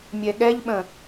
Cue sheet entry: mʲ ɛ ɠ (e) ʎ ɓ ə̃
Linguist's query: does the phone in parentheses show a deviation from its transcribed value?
yes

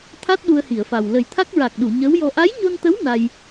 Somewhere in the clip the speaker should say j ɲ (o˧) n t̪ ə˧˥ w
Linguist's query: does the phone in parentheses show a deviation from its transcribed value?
no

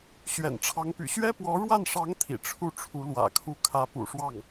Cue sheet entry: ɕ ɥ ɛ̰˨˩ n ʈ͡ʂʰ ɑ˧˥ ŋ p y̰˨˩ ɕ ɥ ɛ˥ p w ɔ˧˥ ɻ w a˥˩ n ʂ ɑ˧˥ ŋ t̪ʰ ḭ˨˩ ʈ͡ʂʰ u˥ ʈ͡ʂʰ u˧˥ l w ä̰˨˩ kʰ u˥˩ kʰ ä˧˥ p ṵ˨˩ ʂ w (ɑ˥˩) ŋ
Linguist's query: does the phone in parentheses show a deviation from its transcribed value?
no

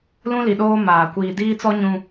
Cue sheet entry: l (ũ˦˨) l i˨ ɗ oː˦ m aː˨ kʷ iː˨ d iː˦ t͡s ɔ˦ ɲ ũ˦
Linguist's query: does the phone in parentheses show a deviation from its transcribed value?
yes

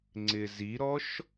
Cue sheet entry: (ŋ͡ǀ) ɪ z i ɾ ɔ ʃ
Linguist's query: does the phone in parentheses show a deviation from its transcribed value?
no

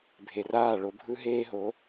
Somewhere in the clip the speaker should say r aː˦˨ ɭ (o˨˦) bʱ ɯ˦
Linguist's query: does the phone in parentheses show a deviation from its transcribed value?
no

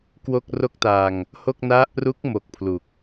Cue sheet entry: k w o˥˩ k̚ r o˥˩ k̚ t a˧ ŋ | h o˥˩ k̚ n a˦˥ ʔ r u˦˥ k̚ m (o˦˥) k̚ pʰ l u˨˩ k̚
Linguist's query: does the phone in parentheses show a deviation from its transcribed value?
no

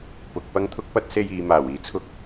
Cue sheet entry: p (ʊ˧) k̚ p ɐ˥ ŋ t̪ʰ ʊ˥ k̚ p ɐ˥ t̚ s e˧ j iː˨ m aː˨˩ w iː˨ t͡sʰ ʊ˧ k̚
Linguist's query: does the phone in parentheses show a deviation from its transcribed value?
no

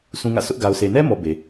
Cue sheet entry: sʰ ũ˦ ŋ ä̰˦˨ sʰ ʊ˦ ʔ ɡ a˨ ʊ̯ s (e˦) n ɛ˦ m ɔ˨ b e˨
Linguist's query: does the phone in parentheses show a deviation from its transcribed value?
yes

